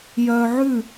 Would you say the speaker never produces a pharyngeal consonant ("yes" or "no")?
no